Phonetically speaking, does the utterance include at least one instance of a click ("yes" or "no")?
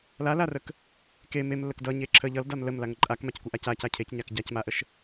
yes